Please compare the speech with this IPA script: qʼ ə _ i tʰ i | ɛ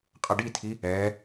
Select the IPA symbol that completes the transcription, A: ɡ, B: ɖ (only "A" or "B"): B